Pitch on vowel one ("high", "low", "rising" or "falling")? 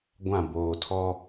falling